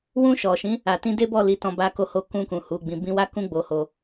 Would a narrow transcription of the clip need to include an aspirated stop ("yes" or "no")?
no